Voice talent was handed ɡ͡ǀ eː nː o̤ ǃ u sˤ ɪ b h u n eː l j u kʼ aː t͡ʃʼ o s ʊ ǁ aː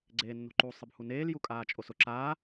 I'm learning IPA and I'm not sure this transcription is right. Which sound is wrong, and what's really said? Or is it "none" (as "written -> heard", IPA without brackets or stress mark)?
none